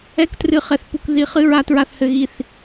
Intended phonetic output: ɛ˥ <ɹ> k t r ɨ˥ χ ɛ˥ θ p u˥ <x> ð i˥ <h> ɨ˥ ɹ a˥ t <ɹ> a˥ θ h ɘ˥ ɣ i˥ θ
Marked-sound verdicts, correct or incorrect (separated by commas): incorrect, incorrect, incorrect, correct